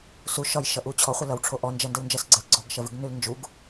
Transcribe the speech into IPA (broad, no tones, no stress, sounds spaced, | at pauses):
s u ʃ ɒ j ʃ ʌ ʔ u t͡ɕʰ ɔ χʷ ə l ʌ w ʈ͡ʂʰ o ʔ ɔ n d͡ʒ ɜ n d ə w n d͡ʒ ɜ s ɡ͡ǀ ə l ɡ͡ǀ ɔ ɡ ʃ ɜ v ʉ ɡ n ʉ l n d͡ʒ u ɡ